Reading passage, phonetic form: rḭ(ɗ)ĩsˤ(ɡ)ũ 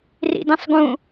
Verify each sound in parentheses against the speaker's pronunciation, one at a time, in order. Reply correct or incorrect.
incorrect, correct

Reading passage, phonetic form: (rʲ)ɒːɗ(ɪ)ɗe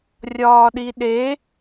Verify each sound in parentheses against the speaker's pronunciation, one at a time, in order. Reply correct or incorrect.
correct, incorrect

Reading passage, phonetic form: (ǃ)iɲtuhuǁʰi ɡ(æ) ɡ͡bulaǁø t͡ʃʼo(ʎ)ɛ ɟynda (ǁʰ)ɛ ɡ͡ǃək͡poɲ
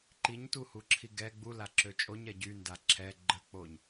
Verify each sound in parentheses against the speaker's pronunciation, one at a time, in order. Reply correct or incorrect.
correct, incorrect, incorrect, correct

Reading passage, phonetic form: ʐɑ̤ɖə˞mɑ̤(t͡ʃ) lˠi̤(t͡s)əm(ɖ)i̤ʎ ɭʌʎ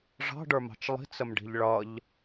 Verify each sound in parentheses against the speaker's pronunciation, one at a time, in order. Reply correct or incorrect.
correct, correct, correct

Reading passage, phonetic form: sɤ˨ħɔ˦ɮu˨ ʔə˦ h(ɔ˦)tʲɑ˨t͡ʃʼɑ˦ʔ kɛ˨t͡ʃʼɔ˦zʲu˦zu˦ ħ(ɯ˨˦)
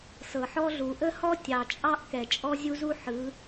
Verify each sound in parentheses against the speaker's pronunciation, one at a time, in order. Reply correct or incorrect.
correct, correct

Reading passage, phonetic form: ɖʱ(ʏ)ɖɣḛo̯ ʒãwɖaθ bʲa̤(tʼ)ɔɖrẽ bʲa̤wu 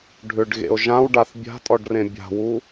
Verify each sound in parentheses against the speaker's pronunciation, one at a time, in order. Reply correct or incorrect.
correct, correct

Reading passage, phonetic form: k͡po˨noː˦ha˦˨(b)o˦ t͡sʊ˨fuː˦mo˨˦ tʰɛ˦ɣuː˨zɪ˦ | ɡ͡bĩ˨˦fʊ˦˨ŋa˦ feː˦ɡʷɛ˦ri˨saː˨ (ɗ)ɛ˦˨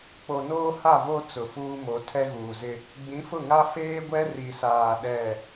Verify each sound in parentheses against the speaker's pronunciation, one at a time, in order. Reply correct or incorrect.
incorrect, correct

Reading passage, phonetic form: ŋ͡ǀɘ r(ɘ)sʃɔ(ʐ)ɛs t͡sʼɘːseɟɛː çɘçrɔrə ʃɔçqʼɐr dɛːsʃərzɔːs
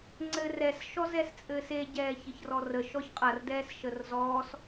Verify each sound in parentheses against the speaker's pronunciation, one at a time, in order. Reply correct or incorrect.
incorrect, incorrect

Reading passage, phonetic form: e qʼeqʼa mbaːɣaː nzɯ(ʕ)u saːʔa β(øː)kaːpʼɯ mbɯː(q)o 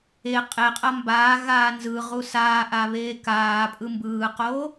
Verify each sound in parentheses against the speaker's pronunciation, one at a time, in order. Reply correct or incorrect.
incorrect, incorrect, correct

